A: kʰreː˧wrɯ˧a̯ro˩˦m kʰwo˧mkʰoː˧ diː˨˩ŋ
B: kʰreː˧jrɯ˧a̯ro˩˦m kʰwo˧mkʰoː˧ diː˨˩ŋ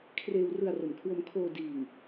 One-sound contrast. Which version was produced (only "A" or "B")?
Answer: A